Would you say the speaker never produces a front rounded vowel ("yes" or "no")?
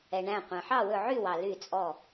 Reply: no